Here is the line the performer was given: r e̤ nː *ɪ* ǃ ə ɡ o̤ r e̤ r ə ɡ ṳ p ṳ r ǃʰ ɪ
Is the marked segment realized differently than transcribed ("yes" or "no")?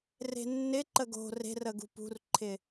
no